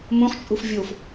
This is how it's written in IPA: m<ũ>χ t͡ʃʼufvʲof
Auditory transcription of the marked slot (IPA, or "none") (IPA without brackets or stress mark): ũ